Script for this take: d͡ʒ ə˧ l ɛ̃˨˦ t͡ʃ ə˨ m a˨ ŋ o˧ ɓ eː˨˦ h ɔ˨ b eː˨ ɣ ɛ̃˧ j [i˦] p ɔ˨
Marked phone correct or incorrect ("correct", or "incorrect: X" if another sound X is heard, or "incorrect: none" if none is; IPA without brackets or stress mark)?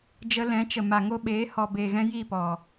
incorrect: i˦˨